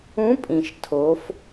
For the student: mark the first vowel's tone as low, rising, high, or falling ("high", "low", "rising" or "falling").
rising